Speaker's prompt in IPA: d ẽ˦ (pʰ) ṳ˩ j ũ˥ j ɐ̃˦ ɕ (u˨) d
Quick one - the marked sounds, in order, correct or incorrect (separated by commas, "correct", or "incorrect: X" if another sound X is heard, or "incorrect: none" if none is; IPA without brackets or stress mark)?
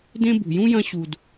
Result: incorrect: b, correct